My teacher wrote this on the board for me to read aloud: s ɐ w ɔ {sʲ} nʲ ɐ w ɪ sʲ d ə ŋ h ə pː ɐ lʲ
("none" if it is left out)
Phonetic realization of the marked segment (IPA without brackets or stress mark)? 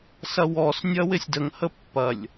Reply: s